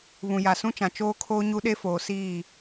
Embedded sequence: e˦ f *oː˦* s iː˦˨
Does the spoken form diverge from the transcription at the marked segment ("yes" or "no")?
yes